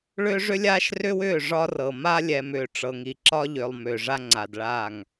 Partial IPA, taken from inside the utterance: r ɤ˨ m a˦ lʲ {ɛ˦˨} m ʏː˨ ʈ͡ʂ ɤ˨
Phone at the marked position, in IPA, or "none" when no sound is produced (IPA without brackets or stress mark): ɛ˨